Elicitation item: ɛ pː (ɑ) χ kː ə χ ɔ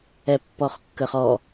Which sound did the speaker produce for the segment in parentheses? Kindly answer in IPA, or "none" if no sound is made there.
ɔ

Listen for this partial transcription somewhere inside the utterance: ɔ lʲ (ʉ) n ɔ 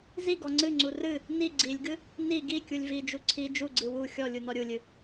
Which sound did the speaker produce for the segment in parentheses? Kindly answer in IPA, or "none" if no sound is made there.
u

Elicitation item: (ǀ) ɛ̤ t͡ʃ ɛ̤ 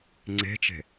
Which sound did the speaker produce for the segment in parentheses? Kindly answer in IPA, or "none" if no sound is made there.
ŋ͡ǀ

